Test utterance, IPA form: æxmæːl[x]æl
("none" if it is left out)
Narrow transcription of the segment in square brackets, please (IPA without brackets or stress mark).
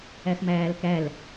k